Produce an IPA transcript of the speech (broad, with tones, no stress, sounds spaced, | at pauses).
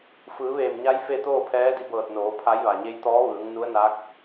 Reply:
f ɯː˩˧ ʋ eː˧˩ m ɲ a˧˥ j f e˥˨ t̪ oː˥˨ pʰ ɛː˧˥ d i˧ b ɤː˧˩ t̚ n oː˩˧ pʰ a˧˥ j ʋ a˩ ɲ e˧˥ j t̪ ɔː˧˥ ʋ ɯː˩˧ ŋ n u˧˥ ə̯ n a˧˥ k̚